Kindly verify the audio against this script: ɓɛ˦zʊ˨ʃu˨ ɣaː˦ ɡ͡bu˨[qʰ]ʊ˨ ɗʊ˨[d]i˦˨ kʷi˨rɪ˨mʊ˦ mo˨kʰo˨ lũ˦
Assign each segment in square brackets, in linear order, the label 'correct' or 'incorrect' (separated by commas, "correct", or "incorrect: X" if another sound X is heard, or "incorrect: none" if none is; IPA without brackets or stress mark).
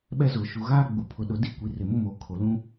incorrect: pʰ, correct